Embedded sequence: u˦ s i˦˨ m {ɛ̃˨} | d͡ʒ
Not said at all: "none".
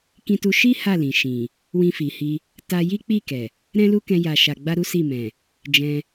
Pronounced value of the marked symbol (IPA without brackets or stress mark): ɛ̃˨